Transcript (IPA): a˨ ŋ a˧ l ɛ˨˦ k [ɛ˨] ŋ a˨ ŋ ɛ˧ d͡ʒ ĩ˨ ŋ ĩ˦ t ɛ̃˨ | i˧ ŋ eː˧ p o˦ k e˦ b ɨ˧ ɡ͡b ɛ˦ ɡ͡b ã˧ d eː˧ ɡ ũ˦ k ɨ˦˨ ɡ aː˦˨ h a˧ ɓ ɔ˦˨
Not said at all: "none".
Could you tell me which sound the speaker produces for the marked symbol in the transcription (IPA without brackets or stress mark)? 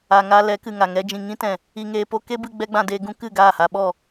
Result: ɨ˨